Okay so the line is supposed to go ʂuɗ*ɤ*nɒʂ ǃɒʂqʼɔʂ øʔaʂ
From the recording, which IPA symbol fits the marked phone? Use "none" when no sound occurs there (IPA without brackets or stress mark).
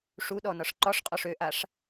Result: ɔ